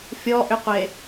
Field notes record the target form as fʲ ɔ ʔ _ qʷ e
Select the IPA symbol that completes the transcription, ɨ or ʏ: ʏ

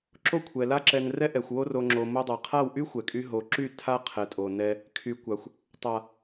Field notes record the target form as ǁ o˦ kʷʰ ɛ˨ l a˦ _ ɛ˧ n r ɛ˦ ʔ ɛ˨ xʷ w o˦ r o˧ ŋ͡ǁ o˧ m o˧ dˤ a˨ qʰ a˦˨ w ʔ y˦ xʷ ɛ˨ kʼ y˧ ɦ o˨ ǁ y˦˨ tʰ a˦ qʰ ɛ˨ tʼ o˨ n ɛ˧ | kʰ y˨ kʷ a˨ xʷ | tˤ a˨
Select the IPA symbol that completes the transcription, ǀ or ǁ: ǁ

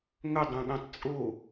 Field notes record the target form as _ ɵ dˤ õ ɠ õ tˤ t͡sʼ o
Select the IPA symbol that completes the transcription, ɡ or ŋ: ŋ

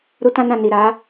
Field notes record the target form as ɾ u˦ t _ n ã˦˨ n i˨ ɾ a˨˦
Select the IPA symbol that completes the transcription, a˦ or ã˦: ã˦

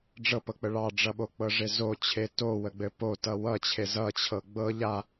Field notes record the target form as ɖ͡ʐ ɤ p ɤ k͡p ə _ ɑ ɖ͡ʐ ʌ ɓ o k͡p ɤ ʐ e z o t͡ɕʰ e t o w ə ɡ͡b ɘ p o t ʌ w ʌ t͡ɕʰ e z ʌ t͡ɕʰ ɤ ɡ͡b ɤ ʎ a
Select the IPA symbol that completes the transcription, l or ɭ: ɭ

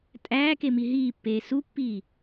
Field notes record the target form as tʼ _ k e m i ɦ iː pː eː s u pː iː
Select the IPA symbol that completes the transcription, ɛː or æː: æː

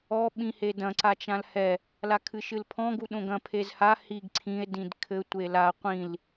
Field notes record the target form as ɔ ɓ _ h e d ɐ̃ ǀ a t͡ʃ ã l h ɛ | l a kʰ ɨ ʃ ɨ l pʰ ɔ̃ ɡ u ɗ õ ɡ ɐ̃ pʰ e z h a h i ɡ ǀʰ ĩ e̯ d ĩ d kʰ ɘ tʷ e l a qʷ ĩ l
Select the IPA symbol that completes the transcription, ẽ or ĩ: ĩ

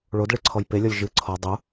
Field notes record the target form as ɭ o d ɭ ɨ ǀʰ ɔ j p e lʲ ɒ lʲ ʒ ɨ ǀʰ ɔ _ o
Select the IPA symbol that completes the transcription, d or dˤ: dˤ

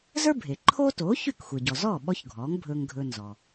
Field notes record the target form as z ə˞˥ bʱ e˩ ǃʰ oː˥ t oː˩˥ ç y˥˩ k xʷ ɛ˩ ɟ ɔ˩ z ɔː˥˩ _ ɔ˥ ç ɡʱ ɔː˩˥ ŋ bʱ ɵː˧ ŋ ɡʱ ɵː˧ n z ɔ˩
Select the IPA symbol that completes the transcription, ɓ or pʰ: ɓ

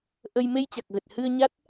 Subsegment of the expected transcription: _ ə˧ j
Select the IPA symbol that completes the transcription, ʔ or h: ʔ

